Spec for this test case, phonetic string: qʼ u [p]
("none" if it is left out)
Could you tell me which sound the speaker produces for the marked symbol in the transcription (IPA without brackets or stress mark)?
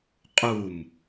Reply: m